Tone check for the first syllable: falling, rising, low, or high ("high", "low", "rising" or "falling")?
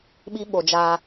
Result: high